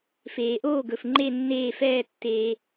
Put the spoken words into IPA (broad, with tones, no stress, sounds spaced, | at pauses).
f eː˩ ʔ oː˥˩ ɡ ɵ˩ f ŋ͡ǃ e˧˩ nː eː˧˩ f ɛː˧˩ tː eː˩